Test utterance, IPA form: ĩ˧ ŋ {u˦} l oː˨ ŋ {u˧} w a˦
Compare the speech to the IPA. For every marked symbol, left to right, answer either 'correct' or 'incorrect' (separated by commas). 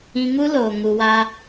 correct, correct